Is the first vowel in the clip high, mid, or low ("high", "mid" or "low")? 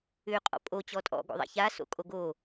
high